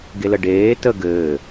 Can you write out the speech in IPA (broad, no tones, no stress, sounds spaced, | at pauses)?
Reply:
ɡ e l ə ɖ eː t ə ɡ ɘː